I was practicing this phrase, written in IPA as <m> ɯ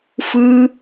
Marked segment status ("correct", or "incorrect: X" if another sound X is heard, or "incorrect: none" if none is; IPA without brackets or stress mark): incorrect: f